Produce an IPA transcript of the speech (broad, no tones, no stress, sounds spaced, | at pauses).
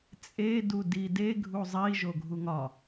t͡sʼ e d u d i d e ɡʱ u zˤ i ʒ o ɡʱ u ŋ ɒ